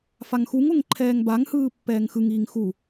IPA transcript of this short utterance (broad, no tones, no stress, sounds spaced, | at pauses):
f a ŋ x u ŋ o ŋ ǃʰ ɛː ŋ b a ŋ h ɯː pː ɛː ŋ x ɯ ŋ iː ŋ x u